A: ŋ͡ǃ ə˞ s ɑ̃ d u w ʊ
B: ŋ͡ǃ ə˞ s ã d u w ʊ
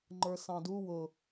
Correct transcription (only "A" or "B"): A